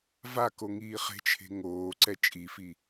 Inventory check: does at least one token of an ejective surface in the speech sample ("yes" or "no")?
yes